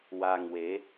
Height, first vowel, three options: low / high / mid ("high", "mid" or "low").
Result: low